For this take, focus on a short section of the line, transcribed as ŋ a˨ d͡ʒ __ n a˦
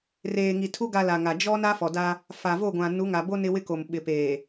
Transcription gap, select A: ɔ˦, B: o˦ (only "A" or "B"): A